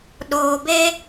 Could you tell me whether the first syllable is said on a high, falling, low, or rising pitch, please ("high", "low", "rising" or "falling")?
low